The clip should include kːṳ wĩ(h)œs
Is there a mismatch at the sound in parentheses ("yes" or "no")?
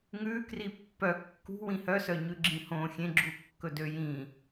no